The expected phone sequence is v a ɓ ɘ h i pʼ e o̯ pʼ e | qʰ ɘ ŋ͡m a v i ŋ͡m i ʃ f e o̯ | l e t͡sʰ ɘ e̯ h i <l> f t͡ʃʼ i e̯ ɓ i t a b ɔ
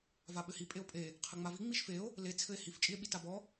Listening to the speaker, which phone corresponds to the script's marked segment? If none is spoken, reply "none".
none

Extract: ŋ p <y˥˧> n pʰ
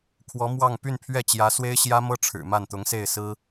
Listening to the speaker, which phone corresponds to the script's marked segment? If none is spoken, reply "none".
y˥˧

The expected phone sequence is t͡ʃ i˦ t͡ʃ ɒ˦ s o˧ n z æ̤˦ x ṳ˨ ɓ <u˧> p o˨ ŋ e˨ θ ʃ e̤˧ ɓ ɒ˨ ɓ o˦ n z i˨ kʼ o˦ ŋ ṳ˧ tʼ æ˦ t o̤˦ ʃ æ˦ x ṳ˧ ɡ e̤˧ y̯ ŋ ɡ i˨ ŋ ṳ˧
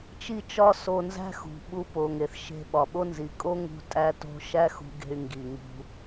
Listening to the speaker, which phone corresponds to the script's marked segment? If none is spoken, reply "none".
u˧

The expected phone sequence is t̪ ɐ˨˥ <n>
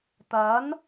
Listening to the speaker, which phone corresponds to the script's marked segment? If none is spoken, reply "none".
n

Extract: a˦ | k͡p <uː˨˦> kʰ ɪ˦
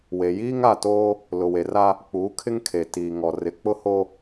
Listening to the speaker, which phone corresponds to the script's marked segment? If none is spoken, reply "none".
uː˨˦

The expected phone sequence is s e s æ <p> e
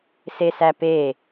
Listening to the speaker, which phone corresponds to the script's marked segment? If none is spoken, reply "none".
p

